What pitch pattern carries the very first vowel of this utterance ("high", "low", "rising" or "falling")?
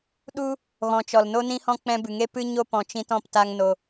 high